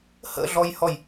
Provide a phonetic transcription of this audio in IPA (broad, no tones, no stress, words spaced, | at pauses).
hə̰ɮɔjhɔj